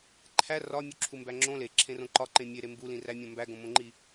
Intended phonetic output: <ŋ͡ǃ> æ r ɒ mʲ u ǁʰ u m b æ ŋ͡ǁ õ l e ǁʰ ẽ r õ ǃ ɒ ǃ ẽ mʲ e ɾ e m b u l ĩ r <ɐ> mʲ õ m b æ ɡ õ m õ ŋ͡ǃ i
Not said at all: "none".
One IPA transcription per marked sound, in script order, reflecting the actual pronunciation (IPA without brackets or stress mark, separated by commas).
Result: ǃʰ, æ